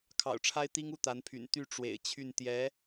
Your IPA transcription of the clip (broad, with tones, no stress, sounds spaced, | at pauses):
kʰ ɑ̰˨˩ ʊ̯ ʈ͡ʂʰ a˥ ɪ̯ t̪ i˥ ŋ u˥˩ t̪ a˧˥ n pʰ y̰˨˩ n t̪ y˥˩ ʈ͡ʂ w ḛ˨˩ ɪ̯ t͡ɕʰ y˥˩ n t̪ j ɛ˧˥